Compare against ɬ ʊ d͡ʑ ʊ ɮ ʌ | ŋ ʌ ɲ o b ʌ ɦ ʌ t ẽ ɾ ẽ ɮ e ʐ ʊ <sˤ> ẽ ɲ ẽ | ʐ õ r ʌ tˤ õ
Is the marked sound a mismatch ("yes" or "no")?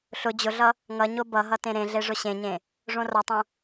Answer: yes